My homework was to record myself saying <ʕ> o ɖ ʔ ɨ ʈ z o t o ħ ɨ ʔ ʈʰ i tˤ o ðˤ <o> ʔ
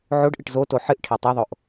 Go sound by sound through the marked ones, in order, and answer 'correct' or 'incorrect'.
correct, correct

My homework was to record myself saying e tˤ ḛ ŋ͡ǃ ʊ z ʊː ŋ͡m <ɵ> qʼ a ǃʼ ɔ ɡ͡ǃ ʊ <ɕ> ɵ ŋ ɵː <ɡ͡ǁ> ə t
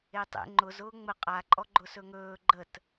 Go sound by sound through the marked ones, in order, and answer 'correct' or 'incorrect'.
incorrect: ə, incorrect: s, incorrect: ɡ͡ǃ

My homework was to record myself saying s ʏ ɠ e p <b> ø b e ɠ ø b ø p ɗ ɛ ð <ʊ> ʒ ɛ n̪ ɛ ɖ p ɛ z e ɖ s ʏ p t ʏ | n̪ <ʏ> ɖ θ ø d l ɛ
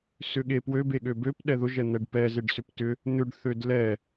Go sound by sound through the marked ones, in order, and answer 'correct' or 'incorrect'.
incorrect: w, correct, correct

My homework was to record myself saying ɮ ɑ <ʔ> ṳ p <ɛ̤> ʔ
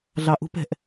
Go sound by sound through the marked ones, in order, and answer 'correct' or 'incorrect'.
correct, correct

